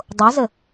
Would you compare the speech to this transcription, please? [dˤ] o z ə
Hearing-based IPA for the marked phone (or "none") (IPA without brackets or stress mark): dˤ